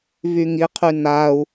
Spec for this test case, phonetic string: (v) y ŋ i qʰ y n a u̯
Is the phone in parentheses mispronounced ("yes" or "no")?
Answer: no